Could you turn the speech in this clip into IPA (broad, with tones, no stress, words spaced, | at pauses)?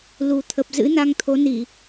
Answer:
lu˨˩t̪ʰə˨˩p̚ zɨ̰˧˥na˧ŋt̪ʰo˨˦ni˧˩˨